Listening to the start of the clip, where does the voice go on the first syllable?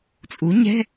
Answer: rising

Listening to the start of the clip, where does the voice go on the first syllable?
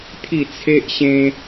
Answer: falling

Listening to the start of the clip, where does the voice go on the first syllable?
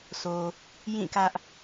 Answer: low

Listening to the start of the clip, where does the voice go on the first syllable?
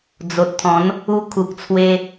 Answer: low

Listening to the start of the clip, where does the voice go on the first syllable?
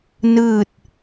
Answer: falling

